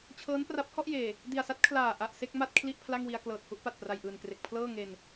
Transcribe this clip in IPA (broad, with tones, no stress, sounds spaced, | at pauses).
t͡ɕʰ ɤː˦˥ n p r a˦˥ p̚ h ɔ˥˩ ʔ j eː˨˩ | d i˨˩ a̯ s a˦˥ t̚ kʰ l aː˨˩ ʔ a˨˩ ʔ s e˥˩ k̚ m a˥˩ t̚ kʰ l i˥˩ ʔ pʰ l a˥˩ ŋ w i˧ a̯ k l ɤː˨˩ t̚ h u˥˩ ʔ p a˨˩ t̚ p r a˨˩ j ʔ ɯː˨˩ n k r e˨˩ k̚ pʰ l ɤː˥˩ ŋ e˨˩ n